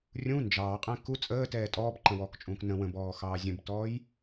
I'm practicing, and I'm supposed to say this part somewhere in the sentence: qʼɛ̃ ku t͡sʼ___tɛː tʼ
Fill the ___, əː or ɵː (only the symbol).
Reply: əː